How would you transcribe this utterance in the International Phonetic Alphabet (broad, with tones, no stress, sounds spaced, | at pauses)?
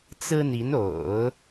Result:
t͡s ɹ̩˥ n̪ i˧˥ n o̰˨˩˦ ʊ̯